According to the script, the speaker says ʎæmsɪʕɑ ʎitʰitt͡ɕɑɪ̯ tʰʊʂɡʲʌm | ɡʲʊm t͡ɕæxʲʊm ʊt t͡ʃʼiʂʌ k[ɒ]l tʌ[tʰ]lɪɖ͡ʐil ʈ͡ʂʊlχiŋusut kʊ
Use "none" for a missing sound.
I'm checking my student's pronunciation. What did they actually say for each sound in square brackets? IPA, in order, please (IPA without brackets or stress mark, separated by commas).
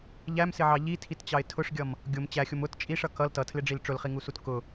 ʌ, tʰ